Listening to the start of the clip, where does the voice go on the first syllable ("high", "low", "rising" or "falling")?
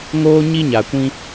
high